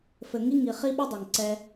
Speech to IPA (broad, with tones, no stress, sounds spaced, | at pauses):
f ɘ˨ ŋ i˦ ŋ i˨ χ i˦ ɓ ɘ˦ dˤ ɛ˨ ŋ ǀ ɛ˦